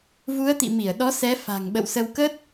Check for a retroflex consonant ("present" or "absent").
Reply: absent